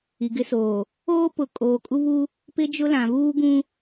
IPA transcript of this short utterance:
i˨ ɡ ɪ˦ s oː˨ | oː˦ p ʊ˨˦ kʼ oː˨ kʼ u˦ β u˦ | p ɪ˦ d͡ʒ ʊ˦ l ã˨ β uː˦ ɡ ũ˦

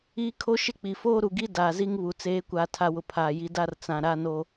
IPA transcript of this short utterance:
iː˦ kʰ o˦ ʃ ɪ˦ k͡p i˨ f oː˦ ɾ u˨ ɡ i˦ d aː˨ z i˦ ŋ β u˨ t͡s eː˨˦ kʷ aː˨ tʰ a˨ w ʊ˨ pʰ aː˨ j i˨˦ d a˦ r t͡s ã˨ ɾ a˦ n o˦

